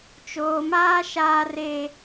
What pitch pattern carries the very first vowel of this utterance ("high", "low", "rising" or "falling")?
low